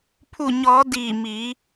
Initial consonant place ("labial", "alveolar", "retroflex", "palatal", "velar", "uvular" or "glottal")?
labial